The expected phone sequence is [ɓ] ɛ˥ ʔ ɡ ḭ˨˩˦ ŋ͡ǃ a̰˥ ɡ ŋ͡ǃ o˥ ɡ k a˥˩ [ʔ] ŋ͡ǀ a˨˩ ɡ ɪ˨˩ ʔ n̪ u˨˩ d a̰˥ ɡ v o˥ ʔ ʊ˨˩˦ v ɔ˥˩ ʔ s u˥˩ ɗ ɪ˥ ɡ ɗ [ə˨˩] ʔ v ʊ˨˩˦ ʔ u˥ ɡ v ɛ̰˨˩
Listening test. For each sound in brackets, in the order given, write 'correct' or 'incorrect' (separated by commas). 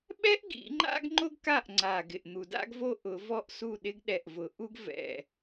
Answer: correct, correct, incorrect